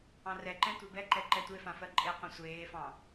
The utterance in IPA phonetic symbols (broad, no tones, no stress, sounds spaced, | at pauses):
ɑ̃ r ɛ ǃ ɛ̃ tʷ e b ɛ ǃ ɛ ǃ ɛ tʷ e f ã f ɜ ǃʼ e qʷ ɛ̃ sʷ eː f ɑ̃